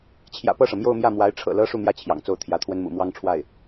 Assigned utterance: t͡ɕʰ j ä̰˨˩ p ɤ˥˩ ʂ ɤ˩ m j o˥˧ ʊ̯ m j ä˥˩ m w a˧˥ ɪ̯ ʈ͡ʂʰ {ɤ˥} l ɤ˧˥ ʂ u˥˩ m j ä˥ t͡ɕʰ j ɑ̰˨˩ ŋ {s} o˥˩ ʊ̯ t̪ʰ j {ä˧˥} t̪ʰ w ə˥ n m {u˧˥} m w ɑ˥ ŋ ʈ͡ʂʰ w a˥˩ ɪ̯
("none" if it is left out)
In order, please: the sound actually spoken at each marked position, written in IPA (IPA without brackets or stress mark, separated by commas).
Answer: ɤ̰˨˩, t͡s, ä˧˥, ṵ˨˩